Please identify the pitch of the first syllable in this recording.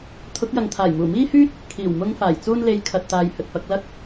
rising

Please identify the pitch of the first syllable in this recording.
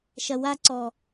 low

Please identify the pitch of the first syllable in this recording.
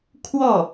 falling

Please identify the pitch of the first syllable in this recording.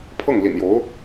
falling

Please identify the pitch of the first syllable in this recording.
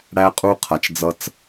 high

